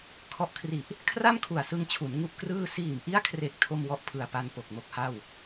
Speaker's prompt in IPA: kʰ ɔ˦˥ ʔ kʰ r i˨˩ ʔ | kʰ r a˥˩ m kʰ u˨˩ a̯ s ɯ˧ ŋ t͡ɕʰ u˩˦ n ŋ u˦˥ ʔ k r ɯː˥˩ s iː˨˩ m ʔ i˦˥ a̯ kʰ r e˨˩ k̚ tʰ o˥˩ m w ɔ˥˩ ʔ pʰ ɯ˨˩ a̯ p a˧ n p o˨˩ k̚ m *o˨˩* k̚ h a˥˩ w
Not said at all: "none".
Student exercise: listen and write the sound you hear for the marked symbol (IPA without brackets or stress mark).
o˥˩